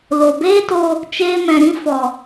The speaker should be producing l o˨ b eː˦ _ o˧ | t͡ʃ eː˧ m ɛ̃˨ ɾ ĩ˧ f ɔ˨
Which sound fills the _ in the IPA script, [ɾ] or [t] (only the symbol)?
t